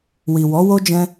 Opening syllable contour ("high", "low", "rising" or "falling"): low